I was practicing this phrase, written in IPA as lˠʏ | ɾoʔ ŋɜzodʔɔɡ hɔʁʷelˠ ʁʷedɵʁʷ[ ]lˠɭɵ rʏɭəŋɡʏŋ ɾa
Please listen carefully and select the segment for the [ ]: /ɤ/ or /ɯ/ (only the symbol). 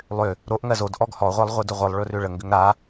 ɯ